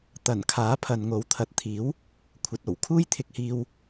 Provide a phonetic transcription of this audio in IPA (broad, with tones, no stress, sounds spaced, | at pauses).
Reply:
t̪ ɐ˨˩ n kʰ aː˨˥ pʰ ɐ˨ n ŋ o˨˥ w t̪ʰ ɐ˨ t̚ t̪ʰ iː˨˥ w | kʷʰ ɐ˨ t̚ o˨˩ w kʰ uː˥ j t̪ʰ ɪ˧ k̚ h iː˧ w